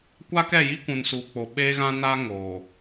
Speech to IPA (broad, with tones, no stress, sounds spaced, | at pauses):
kʷ a˦ k ɛ˦˨ j i˦ kʷ ũ˨ n s uː˨ k͡p o˨ ɓ eː˦ ɣ ã˦ n aː˦ ŋ oː˨